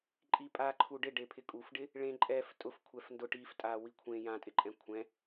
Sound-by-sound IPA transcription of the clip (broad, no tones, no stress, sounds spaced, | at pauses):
ǃʼ i pʼ a ǃʰ u ɖ ɪ ɖ e pʰ ɪ kʼ u f ɖ ɪ | ɭ ẽ ǃʼ ɛ f tʼ ʊ f kʷʰ ɛ f n d ʊ ʈ i f tʼ a w i kʷʰ ẽ j ã tʼ ɪ ǃʼ ɛ̃ kʷʰ ɛ̃